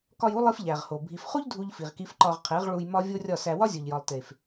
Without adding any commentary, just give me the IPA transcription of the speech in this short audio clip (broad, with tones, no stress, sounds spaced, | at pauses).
k ɒ˧ j u˦ lˠ i˦ f ʎ æ˨ ʁ h o˨ bʱ i˨ f χ u˦ ʎ dʱ u˦ ʎ f i˨ ʁ k i˦ f ǃ ɒ˧ ʁ qʰ e˨˦ ʁ ɭ u˧ j m ɒ˦ vʲ o˦ rʲ ɒ˦˨ s æ˧ w ɒ˦ zʲ o˨ ʎ j ɒ˨ lˠ t e˨ f